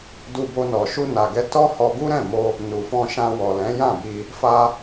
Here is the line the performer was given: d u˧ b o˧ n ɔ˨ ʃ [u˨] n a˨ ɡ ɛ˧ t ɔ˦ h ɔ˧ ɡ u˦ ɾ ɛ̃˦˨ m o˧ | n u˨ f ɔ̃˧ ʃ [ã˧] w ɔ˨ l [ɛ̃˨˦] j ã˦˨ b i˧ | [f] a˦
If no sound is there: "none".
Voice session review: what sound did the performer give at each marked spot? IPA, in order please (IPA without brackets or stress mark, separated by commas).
u˧, ã˧, ɛ̃˨˦, f